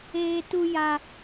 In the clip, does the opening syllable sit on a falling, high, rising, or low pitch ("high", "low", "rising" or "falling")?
high